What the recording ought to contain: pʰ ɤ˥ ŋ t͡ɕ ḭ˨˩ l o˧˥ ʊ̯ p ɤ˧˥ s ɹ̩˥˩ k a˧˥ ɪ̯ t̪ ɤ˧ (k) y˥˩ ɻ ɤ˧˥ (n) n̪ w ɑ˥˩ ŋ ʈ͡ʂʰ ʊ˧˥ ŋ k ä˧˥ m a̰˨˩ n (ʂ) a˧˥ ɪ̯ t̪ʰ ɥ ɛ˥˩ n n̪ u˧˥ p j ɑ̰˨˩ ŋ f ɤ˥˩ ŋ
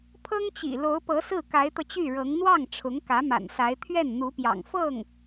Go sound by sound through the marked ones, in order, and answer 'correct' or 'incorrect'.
incorrect, incorrect, incorrect

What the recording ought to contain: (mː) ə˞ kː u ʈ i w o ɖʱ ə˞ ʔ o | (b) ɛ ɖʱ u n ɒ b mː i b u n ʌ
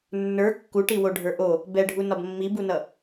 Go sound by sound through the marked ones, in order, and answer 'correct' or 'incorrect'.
incorrect, correct

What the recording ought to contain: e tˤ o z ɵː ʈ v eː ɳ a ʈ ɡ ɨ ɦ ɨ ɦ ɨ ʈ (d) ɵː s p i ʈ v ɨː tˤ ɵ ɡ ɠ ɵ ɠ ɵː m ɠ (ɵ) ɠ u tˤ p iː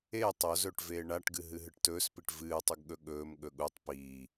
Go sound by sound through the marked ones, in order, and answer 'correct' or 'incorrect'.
incorrect, correct

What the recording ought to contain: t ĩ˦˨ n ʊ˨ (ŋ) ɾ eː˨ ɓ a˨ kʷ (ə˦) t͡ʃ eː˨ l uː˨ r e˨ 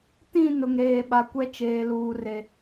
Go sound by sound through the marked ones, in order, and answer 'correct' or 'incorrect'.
correct, incorrect

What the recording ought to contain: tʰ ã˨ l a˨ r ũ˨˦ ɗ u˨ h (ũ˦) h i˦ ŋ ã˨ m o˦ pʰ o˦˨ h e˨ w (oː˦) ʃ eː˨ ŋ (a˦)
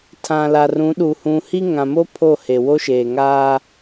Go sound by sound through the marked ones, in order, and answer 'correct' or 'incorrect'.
incorrect, incorrect, incorrect

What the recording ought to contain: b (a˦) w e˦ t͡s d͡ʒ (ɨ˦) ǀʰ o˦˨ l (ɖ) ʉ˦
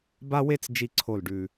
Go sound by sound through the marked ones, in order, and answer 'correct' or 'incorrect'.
correct, incorrect, correct

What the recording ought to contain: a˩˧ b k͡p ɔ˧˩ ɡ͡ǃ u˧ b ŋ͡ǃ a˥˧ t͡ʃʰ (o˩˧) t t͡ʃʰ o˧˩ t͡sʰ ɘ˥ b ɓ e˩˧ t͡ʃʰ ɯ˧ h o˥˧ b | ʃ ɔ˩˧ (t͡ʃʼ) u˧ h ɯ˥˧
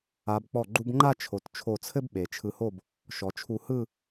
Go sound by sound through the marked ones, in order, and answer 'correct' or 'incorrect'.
correct, incorrect

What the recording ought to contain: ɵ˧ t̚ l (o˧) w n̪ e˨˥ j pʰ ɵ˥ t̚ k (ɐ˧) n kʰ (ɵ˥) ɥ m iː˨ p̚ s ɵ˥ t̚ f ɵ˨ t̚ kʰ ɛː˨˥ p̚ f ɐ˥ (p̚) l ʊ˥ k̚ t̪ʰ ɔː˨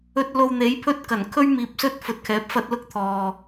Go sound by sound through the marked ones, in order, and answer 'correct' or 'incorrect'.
correct, incorrect, correct, incorrect

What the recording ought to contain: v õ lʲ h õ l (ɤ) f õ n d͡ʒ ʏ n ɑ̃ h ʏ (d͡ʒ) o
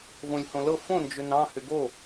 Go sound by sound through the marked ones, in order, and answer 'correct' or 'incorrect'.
correct, incorrect

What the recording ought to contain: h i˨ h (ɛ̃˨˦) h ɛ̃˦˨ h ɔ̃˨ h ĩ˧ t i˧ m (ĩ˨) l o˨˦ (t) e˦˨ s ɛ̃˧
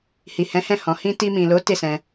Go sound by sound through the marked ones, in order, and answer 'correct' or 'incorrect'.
correct, correct, correct

